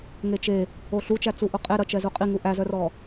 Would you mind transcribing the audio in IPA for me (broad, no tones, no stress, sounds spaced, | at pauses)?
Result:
ŋ e t͡ʃ e | o ɬ u t͡ʃ æ t͡s u ʔ o qʼ e ɾ ɐ t͡ʃ ɛ z u qʼ i ŋ u ʔ æ z œ r ɔ